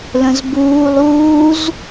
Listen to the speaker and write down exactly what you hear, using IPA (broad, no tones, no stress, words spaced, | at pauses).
lə̃zbuːlˠ uːz